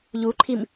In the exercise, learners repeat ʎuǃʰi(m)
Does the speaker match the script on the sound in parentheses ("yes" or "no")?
yes